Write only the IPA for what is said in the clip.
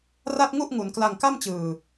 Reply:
ra˥˩t̚ŋu˥˩ʔŋu˩˦n kla˧ŋka˥˩mt͡ɕɯː˨˩

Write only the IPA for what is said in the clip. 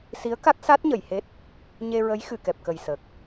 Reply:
si˧˥ə̯ka˦˥k̚sa˦˥t̚ ɲə˨˩˨jhe˦˥t̚ | ɲe˧ɹə˧˥j xɨ˨˩˨kɛ˨˩p̚kə˨˩j sə˨˩k̚

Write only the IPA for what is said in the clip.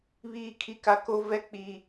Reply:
βiː˦kʰi˦ka˦ ko˦vɛ˦ k͡pi˦

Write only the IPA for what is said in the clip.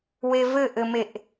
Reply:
wevɘʔɘmeʔ

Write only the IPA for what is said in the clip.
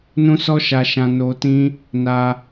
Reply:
nũ˦sɔ˦ʃa˧ʃã˧ no˧tĩ˦ | na˧

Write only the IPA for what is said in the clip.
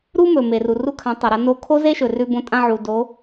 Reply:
ɾu˥ mɵ˩me˩ru˩ ru˧kʰã˩˧tˤɐ˩ɾɐ˩˧ no˧kʰo˥ze˥ʃɵ˩ rʉ˧bõ˧ tʼã˧ʕu˩ do˩˧

